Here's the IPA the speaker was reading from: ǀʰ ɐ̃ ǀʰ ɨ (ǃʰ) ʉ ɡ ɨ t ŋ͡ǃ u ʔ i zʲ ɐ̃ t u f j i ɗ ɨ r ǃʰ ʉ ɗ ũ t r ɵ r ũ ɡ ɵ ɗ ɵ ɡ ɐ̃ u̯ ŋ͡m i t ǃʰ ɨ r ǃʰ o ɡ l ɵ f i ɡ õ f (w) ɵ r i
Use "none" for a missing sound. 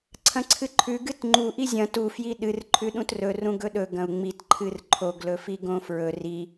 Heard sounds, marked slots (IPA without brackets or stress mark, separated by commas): ǃʰ, ɹ